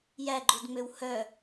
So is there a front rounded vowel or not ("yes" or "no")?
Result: yes